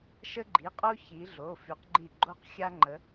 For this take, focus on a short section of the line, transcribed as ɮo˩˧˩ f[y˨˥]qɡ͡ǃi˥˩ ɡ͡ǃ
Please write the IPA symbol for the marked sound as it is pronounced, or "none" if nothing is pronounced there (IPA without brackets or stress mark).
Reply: y˨˥